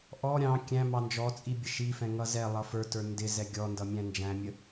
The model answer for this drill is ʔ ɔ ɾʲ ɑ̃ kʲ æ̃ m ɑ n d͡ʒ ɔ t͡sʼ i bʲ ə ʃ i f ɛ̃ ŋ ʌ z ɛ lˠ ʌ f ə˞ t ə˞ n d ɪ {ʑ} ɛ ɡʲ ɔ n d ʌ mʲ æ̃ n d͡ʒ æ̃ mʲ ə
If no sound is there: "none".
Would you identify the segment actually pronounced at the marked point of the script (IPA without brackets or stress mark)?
z